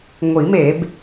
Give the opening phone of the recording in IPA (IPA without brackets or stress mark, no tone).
ŋʷ